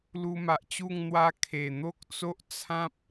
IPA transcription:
lu˧ma˨ʔt͡ɕu˥˧ŋ n̪wa˦ kʰe˨˩n̪o˦k̚t͡so˦ʔ t͡sʰã˦p̚

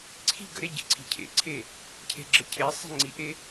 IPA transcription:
ǀʰi̤ ɡə̰ɾe ɟḭǀʰi̤cʰḛǀʰe | cʰe̤ɡ͡ǁəcʰesˤi̤ ŋ͡ǀiʔe

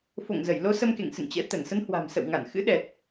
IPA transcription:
fo̰˧˨ŋzə˧˩j lo˧ sə˧mkḛ˧˨ŋ sɨ̰˧˨ŋt͡ɕɛ̰˧˥ t̪ə˧˩nsə˨˦nhwa̤˨˩m sə̰˧˨wŋa˧˩nxɨ̰˧˥ ɗɛ˨˩t̚

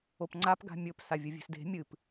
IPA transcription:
opŋ͡ǀap ɡa̤mʲɵp savʲɵvʲe̤sde̤ mʲɨp

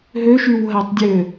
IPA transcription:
ɦøʃyw ɦætˤdʲø

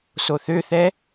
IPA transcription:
soθøθɛ

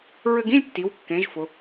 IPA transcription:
ɹɘ˧ɡĩ˥˧lʲtːi˩˧wkːẽ˩˧ʒ fʊ˩˧

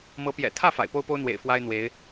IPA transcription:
mɤ˧˥pjɛ̰˨˩ t̪ʰä˥˩ fa̰˨˩ɪ̯po˥ʊ̯po˥ʊ̯n̪wḛ˨˩ɪ̯ fwa˥ɪ̯n̪we˧˥ɪ̯

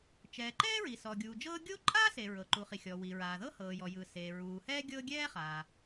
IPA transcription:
t͡ʃɛː˩ǃɛː˥ ɹi˩sɔː˩ɡʲuː˩d͡ʒɤː˥ ɡʲo˥ ǃʼaː˥se˩ ɹɤ˩ǃu˩χi˩ xʲɔ˩wi˩ ɹaː˩ðɤ˥hɤː˩ jɔ˩jɯ˩ se˩ ɹuː˩hɛː˥ ɡʲɤ˥ ɡʲɛː˥χaː˩

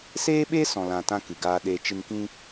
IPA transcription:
seː˦ɓe˦ sɔ̃˨lã˨tã˧ kɨ˨ɡaː˧ɗeː˧t͡ʃɨ˧n kĩ˧

